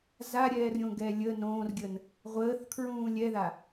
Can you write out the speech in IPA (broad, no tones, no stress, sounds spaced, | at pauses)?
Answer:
z a ɾʲ ɛː r ɾʲ õ ɡ ɛ lʲ ə n õː r ɡʲ ə n | ʁʷ əː θ kʰ ɹ ũː lʲ ɛ ð a